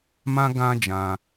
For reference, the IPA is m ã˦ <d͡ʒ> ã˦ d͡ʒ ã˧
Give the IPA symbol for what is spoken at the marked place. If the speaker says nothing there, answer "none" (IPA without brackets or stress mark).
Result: ɡ